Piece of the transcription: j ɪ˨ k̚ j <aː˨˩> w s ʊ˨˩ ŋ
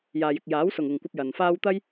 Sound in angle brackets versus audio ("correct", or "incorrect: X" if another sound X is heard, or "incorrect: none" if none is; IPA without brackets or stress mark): incorrect: aː˨˥